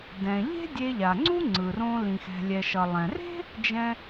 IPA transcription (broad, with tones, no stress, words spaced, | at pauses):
dɛ̃˩ʎe̤˥ dʲe˧ʎa˩ŋ͡ǀu˥ ŋ͡ǀɯ˩rõ˧ lĩ˩xɛ̤˩lʲɛ˩ʃʌ˩ lˠɛ̃˩re̤˥ | d͡ʒɛ̃˧